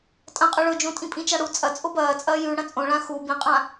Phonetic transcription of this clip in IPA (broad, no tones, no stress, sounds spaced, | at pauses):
tʼ ɐ̃ qʼ ɵ ɭ ɵ d͡ʒ õ tʼ ĩ pʼ ĩ t͡ʃ a ɽ u t͡sʼ ɐ t͡sʼ o b ɐː t͡sʼ ɐː j ʉ ɽ ɐ̃ t͡sʼ õ ɭ ã x u b ĩ qʼ ã